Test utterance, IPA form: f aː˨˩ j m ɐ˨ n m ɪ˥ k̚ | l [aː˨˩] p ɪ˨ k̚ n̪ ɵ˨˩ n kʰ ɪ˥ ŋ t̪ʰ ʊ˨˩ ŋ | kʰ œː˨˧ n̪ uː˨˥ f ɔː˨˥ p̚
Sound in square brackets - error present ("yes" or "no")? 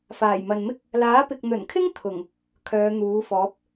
yes